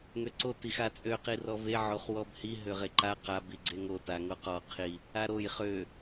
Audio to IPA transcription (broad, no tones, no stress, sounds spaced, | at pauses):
ŋ ø ǀ o t i x a t͡sʼ ø q i r ɔ v e ʕ o χ w ɔ b h i ɦ ø ʁ e ǃ a q a b i ɡ͡ǀ e ŋ o t a ŋ o q ɔ qʰ i | a ɾ o j χ ø